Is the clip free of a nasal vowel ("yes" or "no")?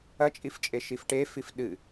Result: yes